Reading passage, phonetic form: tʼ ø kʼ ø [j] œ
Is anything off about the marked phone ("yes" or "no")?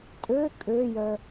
no